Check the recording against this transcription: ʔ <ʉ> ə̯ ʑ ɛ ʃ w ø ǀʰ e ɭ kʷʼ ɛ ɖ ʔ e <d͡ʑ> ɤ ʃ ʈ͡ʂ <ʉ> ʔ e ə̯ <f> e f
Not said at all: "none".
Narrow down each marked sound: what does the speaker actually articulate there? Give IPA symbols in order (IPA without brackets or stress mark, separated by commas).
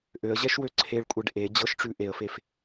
ø, d͡ʑ, ʉ, f